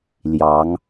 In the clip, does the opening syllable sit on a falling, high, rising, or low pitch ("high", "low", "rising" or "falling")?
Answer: rising